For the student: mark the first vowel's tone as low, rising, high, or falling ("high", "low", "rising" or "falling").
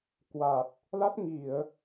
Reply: low